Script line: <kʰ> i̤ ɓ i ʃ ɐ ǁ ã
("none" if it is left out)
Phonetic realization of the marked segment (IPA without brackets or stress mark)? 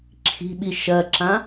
ǁʰ